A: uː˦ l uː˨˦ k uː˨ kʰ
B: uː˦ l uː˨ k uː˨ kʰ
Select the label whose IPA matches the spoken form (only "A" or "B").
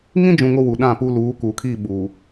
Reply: A